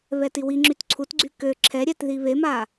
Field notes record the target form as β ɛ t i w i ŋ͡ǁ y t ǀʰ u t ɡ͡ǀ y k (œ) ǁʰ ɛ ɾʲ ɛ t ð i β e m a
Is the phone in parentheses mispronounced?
yes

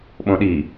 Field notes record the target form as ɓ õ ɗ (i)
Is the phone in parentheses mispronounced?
no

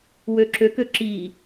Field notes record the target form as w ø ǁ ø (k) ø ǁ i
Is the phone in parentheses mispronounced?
no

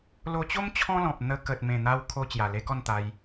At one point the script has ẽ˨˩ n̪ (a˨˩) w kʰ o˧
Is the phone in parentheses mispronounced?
yes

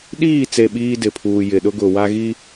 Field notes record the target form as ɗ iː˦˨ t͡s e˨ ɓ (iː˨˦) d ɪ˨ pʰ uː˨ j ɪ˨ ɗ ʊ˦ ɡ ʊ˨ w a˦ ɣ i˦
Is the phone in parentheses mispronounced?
yes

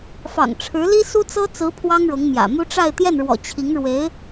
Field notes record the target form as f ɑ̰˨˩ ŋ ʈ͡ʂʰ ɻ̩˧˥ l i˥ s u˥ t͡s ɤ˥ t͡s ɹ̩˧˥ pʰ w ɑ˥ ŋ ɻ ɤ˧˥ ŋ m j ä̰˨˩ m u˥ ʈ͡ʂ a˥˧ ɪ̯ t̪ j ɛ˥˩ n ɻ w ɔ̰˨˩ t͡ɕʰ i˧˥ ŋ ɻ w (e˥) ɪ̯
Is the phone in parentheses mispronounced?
yes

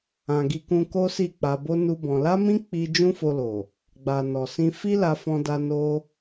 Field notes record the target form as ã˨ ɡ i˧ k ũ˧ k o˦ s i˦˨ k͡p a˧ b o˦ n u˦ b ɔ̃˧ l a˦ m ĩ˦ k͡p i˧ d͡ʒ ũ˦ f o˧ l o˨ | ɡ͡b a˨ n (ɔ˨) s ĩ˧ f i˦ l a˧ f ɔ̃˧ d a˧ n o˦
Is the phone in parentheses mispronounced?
no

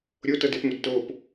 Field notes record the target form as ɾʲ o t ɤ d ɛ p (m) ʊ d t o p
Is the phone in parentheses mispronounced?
no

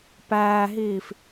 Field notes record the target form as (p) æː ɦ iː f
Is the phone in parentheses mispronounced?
no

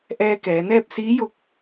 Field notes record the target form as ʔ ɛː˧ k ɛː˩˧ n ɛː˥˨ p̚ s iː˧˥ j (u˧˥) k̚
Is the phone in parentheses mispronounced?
yes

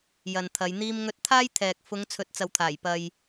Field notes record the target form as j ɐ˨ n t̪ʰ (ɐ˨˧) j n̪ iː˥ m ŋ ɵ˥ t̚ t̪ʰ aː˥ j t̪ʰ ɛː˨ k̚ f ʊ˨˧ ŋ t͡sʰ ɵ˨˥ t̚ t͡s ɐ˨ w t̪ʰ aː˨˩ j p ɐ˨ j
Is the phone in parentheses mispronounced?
no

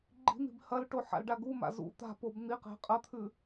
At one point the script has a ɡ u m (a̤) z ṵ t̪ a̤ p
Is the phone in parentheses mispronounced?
yes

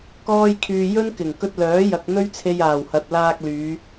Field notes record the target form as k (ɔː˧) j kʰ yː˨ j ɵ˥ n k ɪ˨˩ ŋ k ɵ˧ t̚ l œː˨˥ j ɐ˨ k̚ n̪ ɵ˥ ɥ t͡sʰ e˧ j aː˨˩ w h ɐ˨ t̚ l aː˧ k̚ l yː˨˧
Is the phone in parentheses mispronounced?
no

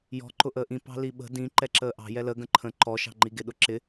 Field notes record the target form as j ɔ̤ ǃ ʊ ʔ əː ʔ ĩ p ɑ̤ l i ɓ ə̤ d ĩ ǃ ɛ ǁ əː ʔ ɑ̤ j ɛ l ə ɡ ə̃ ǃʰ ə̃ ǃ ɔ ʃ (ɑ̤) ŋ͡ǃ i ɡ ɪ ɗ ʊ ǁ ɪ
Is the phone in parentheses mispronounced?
no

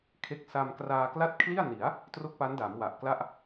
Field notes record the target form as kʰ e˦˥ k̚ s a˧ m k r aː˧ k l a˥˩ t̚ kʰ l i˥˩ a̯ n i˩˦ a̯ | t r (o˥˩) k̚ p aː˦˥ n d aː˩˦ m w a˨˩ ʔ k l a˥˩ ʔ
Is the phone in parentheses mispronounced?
no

